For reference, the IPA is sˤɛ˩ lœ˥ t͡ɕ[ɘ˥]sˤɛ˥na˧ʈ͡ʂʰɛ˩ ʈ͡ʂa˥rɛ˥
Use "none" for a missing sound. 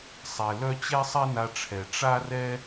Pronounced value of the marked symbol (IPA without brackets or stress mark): ɛ˥